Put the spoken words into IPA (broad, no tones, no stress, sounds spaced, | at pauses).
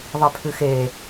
ðˤ i pʰ ɨ x e